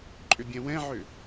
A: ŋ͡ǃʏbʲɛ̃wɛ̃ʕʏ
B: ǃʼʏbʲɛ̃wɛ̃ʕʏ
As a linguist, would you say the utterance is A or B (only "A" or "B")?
B